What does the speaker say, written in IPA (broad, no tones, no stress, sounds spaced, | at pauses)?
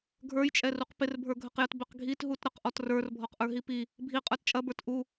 ɡʱ ə˞ j t͡ʃʼ ɛ r u q p ɪ r bʱ ə˞ ɡʱ ə q j ə t b ɪ q ɡʱ i t ɦ u t ɾ ə q ʔ ɔ t r ə˞ r bʱ ɔ q ʔ ə˞ ɦ i p i | bʱ i qʼ ə˞ t t͡ʃʼ ɐ b ə˞ t ʔ u